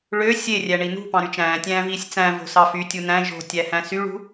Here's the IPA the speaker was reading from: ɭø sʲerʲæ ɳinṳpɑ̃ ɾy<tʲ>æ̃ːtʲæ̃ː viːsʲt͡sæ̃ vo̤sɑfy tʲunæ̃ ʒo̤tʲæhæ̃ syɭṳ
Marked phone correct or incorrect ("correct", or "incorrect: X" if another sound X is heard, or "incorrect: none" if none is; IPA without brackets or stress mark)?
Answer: incorrect: t͡ʃ